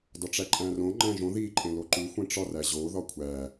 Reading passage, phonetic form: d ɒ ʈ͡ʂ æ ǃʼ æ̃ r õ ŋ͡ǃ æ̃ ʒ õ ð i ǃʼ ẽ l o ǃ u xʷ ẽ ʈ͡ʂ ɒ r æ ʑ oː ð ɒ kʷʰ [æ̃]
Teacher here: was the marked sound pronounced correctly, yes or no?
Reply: no